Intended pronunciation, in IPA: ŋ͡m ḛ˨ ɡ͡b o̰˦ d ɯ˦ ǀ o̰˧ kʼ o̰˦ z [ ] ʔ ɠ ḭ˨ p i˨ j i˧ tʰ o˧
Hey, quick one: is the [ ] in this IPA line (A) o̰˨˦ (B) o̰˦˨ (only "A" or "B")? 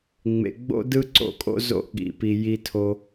B